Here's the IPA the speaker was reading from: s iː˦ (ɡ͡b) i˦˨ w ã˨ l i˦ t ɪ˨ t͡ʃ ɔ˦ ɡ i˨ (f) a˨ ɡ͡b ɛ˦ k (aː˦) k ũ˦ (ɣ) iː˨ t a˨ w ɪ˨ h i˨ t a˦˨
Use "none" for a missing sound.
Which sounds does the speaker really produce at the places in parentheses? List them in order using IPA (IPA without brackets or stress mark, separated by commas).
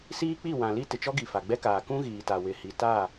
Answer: k͡p, f, aː˨, ɣ